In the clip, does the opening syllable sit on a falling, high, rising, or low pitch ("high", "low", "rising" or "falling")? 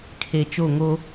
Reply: low